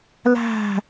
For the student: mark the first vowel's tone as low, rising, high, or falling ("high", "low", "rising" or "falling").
falling